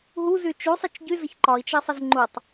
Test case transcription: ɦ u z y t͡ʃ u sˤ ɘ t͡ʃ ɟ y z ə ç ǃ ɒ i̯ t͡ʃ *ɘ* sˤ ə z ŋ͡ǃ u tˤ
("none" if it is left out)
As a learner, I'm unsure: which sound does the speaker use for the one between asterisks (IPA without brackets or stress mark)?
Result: ɘ